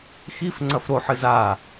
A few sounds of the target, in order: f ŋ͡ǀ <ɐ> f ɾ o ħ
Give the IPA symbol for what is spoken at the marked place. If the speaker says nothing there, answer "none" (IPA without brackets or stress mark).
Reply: ɐ